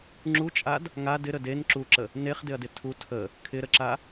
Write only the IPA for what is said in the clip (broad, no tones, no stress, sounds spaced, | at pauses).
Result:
ŋ͡ǁ u t͡ʃʼ a d | ŋ a d ɪ ɾ ə d e n ǁ u ǁ ə | n e χ d ɪ ɐ̯ d ɪ tʰ u tʰ ə | kʰ ɪ ɾ ə ǁ a